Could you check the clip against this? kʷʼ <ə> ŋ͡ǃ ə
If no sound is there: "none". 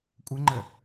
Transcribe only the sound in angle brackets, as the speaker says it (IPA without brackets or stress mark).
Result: ə